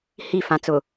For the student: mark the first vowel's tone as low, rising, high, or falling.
falling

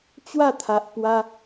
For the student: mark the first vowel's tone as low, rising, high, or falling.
falling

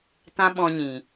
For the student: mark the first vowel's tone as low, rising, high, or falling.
high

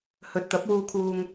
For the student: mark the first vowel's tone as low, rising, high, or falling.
rising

